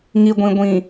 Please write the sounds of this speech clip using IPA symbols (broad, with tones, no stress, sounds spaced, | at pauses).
ŋ i˨ ɡʷ ĩ˨ ɡʷ ĩ˨